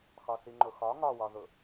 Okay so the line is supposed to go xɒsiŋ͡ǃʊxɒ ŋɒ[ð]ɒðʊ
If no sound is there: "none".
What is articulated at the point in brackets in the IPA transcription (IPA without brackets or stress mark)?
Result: w